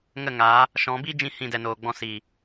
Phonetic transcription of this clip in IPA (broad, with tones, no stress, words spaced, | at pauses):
ŋə˦˨ŋaː˨˦ | ʃɔ̃˨˦ biː˦d͡ʒĩ˧ hĩ˦˨dɛ˧noː˨ɡ͡bɔ̃˦ siː˨